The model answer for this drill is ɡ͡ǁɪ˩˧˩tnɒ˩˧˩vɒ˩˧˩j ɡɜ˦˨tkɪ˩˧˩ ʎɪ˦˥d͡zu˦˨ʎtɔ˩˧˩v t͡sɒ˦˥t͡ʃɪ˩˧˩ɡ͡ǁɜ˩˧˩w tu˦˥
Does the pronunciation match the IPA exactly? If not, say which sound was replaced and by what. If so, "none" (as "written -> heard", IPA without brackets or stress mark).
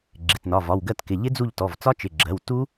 j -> w